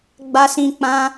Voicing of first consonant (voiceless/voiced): voiced